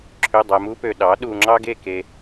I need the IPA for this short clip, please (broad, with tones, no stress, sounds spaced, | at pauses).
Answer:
ǁʰ ø˧˥˧ dˤ æ˧ m u˥ p ø˧ ɗ ɑ˨˥ ɗ u˧ ŋ͡ǁ ɑ˥ ɡ e˥˧ k e˧